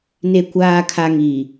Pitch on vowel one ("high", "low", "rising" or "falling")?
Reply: low